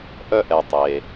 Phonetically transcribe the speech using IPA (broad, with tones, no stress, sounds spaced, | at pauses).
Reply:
ʔ œ˥ ʔ ɛ˩ tˤ e˩